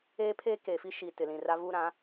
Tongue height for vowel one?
mid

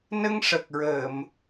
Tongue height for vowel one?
mid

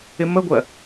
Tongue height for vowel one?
high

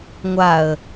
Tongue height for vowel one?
low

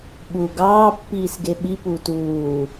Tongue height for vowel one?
high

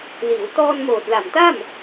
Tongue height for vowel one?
high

